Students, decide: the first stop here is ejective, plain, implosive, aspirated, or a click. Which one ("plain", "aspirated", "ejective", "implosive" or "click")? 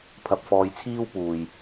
aspirated